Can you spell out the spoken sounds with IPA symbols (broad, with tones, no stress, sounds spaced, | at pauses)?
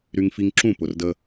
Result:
ɾ y˧ ŋ f i˧ ŋ ǁ ũ˦˨ p ʊ˨ r d ə˧